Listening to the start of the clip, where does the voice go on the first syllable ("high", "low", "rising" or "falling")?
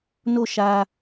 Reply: falling